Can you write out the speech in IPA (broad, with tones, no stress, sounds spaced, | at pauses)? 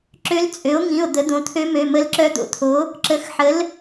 ǁ ø˧˥ l t͡sʼ ø˩˥ o̯ ŋ ĩ˩˧˩ o̯ d̪ ə˩˥ d̪ õ˩˧˩ t̪ʰ ø˧˥ m ø˩˧˩ m ə˧˥ l ǁ œ˧˥ d̪ o̰˧˥ t̪ʰ o˩˥ | ǁ ə˩˥ x ħ ə˩˥ l